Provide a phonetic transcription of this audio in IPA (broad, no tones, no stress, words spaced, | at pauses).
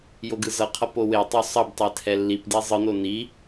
joɡɯzʌqʰʌ powetˤo sˤʌbtˤɛ tʰɛlːipdi zˤɯno ni